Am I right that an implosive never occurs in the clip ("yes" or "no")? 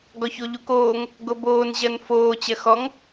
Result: yes